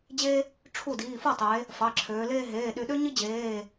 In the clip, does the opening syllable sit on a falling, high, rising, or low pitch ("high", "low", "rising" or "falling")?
high